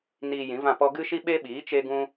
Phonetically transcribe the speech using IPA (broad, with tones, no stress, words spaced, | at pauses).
niː˧jĩ˨˦vã˦˨pɔ˦ ɡɨ˦ʃi˦ɓe˦ɓiː˨˦ t͡ʃe˦ɡũ˦